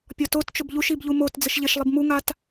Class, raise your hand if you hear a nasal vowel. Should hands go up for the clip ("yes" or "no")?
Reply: no